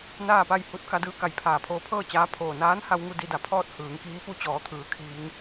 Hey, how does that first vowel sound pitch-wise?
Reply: falling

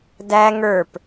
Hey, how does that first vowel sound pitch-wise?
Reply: high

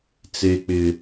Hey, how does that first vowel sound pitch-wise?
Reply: high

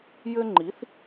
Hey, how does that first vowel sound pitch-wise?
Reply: high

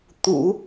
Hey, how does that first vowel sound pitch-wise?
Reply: low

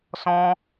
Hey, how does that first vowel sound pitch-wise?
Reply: high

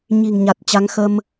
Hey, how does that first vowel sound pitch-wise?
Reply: low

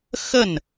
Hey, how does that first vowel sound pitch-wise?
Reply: falling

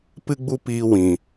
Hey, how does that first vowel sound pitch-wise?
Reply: high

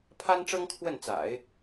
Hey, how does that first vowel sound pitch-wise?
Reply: high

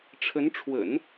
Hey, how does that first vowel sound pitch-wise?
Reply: rising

